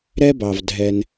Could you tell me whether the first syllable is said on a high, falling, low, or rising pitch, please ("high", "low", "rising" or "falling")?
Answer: high